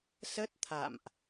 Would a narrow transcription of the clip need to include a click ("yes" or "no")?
no